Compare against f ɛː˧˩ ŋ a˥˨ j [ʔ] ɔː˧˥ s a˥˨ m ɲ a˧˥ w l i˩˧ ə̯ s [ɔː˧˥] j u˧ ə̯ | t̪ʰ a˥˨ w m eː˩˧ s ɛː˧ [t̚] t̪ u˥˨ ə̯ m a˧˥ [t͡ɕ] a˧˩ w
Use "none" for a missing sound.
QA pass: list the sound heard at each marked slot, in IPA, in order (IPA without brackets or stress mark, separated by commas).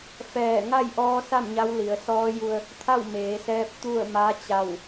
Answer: ʔ, ɔː˧˥, p̚, t͡ɕ